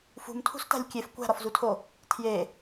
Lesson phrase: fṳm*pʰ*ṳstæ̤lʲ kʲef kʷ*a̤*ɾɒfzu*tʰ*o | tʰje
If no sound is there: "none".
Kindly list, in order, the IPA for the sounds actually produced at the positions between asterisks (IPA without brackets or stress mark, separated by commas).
tʰ, æ̤, tʰ